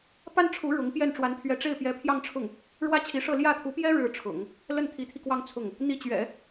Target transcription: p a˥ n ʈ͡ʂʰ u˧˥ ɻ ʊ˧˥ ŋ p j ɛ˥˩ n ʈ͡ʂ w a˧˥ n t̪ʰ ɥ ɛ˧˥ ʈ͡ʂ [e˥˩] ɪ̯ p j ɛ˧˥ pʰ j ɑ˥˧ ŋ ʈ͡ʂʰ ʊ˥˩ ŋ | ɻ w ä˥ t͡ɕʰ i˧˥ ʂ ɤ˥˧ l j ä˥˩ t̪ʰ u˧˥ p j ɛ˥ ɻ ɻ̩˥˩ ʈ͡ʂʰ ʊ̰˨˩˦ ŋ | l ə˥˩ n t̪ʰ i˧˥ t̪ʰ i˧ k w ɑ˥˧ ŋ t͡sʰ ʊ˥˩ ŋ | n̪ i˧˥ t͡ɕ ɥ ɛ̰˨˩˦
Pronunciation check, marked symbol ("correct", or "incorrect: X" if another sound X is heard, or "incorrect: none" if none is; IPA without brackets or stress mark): correct